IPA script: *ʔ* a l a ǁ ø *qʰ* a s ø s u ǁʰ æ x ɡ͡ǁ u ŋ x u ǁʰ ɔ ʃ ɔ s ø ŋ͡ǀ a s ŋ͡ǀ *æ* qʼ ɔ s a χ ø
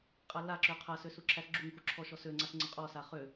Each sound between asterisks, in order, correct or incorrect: incorrect, correct, incorrect

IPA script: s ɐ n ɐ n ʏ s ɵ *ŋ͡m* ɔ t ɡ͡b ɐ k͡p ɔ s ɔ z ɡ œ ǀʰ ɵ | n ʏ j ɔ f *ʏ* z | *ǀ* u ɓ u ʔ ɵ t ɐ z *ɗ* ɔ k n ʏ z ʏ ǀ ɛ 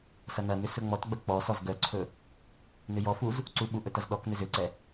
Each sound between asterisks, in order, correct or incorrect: correct, incorrect, correct, correct

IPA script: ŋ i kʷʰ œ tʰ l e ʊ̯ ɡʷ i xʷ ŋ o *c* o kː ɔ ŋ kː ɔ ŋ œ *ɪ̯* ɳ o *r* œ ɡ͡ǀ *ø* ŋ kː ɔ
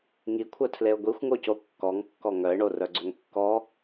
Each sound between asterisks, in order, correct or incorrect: correct, correct, correct, correct

